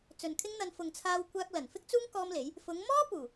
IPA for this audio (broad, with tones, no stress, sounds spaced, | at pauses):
t͡s ɵ˨ n kʰ ɪ˥ ŋ n̪ ɐ˧ n f ʊ˨ ŋ t͡sʰ aː˧ w kʷ aː˧ k̚ l ɐ˨˩ n f ɪ˥ k̚ t͡s uː˥ ŋ k ɔː˥ m l e˨˥ j | f ʊ˨˧ ŋ m ɔː˥ p uː˨˩